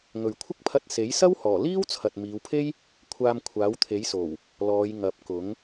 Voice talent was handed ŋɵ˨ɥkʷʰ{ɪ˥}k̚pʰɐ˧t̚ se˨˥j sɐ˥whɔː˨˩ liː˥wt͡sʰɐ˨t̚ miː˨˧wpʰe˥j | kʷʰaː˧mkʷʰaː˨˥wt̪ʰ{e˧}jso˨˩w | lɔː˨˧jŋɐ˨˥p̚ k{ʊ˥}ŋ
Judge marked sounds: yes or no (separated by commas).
yes, no, no